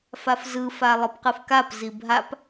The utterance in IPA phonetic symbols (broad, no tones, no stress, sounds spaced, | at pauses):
f a f z ɯ f a lˠ ɯ p q ɯ f k a p z i bʱ a p